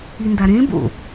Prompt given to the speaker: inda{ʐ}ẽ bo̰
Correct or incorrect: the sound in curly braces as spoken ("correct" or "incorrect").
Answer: incorrect